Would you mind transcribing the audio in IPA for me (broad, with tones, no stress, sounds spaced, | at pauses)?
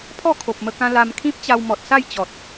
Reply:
pʰ ɔ˥˧ kʰ o˨ p̚ m ə˧ k ã˧ l a˧ m kʰ ĩ˦ p̚ t͡ɕ a˧ w m ɔ˨ t̚ s a˥˧ j t͡ɕ ɔ˨ t̚